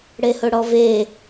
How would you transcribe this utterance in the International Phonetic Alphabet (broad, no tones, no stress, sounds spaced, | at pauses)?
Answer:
ɽ e h ʊ ɽ ɔ v e